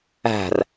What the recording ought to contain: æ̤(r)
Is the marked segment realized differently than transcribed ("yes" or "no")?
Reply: no